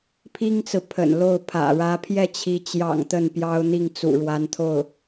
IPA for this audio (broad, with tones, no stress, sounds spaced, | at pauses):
pʰ i˥ ŋ t͡s ɹ̩˨ pʰ ə̰˨˩ n l o˥˩ ʊ̯ pʰ ä̰˨˩ ɻ ä˧˥ pʰ j ɛ˥˩ t͡ɕʰ i˧˥ t͡ɕ j ɑ̰˨˩ ŋ t̪ ə˥˩ n p j ɑ˥ ʊ̯ n̪ i˥˩ ŋ t͡s ṵ˨˩ ɻ w a˧˥ n t̪ʰ o˥˩ ʊ̯